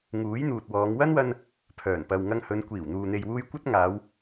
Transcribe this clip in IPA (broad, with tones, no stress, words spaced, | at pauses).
ŋuː˨˥jn̪uː˨t̚wɔː˨˧ŋ wɐ˥nwɐ˧n | pʰœː˨˩npɐ˨w ŋɐ˧ŋhɵ˨˧n kʷiː˨˩wn̪uː˨n̪e˨jwuː˧j kʷɐ˥t̚ŋaː˨˧w